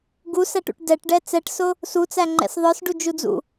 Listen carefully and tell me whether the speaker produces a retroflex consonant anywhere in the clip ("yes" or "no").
yes